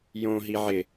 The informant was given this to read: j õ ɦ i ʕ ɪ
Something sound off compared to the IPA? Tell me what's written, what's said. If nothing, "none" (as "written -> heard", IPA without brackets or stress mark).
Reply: none